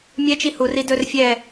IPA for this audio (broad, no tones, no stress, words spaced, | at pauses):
mʲɛt͡ʃi huri dɵr fʲɛ